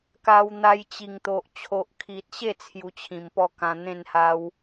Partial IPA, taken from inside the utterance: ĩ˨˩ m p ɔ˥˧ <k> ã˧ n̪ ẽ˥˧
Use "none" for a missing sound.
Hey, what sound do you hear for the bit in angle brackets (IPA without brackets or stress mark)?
k